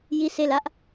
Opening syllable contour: falling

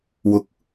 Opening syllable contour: rising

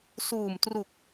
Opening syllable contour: low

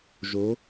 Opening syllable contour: rising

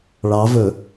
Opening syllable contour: rising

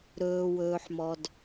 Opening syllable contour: low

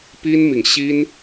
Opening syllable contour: high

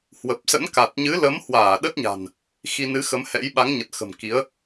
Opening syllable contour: low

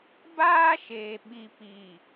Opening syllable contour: high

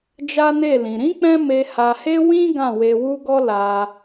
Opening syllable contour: high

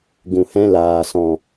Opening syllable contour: low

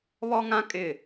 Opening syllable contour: high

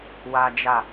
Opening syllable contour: high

